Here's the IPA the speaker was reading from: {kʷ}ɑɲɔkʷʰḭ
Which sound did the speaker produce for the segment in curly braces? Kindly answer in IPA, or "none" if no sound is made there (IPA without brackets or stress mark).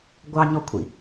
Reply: ɡʷ